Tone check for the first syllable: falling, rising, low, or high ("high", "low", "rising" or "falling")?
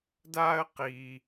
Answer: high